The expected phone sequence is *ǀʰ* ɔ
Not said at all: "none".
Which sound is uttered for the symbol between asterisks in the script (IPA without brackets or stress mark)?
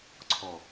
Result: ǀʰ